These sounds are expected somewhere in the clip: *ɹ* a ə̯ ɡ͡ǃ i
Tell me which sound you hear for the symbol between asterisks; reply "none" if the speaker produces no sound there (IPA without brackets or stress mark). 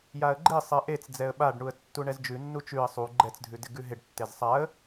j